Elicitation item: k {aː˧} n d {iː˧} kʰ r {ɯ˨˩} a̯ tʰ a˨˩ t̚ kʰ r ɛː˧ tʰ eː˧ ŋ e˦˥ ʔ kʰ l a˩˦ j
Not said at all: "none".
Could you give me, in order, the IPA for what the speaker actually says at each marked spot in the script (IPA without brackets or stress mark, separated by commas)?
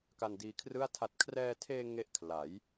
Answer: a˧, iː˧, ɯ˥˩